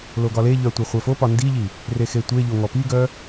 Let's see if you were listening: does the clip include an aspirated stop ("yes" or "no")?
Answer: no